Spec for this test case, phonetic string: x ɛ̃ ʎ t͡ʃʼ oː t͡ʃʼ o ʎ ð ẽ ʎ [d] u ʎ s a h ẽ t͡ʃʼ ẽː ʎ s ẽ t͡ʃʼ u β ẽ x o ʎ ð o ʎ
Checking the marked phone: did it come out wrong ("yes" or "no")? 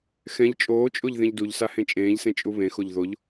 no